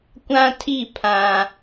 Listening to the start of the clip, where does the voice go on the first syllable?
high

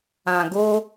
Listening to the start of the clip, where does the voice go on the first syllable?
low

